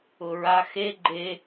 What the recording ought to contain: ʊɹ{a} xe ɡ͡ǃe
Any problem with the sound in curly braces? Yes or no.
no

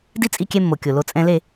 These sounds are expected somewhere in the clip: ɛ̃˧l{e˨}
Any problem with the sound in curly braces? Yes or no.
yes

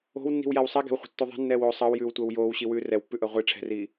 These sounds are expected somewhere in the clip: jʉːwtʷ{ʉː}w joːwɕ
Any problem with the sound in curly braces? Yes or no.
yes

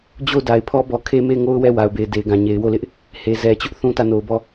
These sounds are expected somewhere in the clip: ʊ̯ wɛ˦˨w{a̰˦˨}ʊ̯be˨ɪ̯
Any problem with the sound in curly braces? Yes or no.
yes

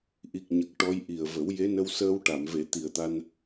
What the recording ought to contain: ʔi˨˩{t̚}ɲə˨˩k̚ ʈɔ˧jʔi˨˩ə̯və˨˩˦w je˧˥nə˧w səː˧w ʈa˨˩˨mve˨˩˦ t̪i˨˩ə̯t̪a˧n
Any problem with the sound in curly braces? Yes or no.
yes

